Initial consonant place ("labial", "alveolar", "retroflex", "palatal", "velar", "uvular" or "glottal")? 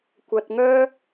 velar